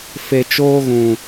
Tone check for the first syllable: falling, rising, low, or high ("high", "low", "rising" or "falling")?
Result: low